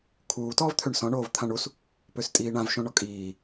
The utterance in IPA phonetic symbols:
kʰuːtɔːvt̪ʰøɳ sɔ̃ ɳoːvt̪ʰãɳus | pøstʼiːɳãvʃõ ɳɔkʼiː

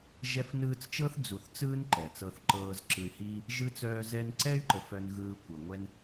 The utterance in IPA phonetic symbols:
ʒɛ˦fnɯː˦t͡st͡ʃɤ˥θ d͡zu˨θt͡sɯː˦n ǃɛ˩t͡sɤ˨θǃɤː˨z ǁɯ˨y̯hiː˦ | ʒɯ˥t͡sœː˦ zɛ˦n ǀɛ˦y̯ǃə˩f œ˨nɣɯː˨ kʷɤ˩ ŋʷɛ˦n

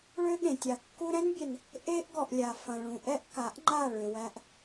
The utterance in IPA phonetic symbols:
ɭø˦ɠẽ˨tʲa˨ kːu˧ɾɛ̃˦nbʲɛ˨n | ʔe˦ʔɡɔ˨ʔlʲa˨ fɐ̃˨ɭũ˨ʔɛ˦ʔka˨˦ʔ ŋ͡ǃa˦˨ɭø˨ wæ˧ʔ

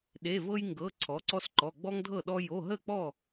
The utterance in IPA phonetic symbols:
ɗe˩˧˩vɤ˦jŋɡɤ˩˧˩ ǀʰɔ˩˥ǀɔ˦sǃɔ˩˧˩ ɡ͡bɔ˦ŋdʱɤ˥˩ɗɔ˦ jo˩˧˩ɦə˥˩k͡pɔ˥˩

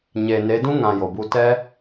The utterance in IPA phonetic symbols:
ɲeː˨ne˨˦ dũ˦ ŋã˨ jo˨bu˧ tɛ˦

